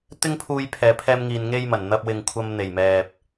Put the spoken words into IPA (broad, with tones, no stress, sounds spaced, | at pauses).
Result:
t̪ ɪ˥ ŋ pʰ uː˧ j pʰ ɛː˨ pʰ ɛː˥ m ŋ iː˧ n ŋ e˥ j m ɐ˨˩ n n̪ ɐ˧ p̚ w ɪ˨ ŋ kʷʰ ɐ˧ m n̪ e˨˩ j m ɛː˨ p̚